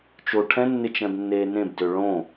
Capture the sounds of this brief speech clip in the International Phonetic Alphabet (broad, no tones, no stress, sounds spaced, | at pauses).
t͡ʃ o ʈʰ ɛ̃ nː ɪ t͡ʃ ɛ̃ b nː eː n ẽ b d ø ɭ õ